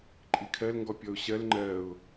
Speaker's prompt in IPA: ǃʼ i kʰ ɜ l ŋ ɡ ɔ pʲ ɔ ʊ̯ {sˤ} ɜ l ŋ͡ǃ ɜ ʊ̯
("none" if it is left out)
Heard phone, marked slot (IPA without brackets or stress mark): ɕ